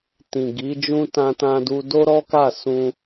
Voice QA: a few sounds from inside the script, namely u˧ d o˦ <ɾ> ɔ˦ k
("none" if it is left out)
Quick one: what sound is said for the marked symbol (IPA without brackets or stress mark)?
ɾ